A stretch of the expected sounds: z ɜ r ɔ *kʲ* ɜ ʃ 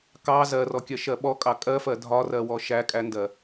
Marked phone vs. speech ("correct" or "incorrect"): correct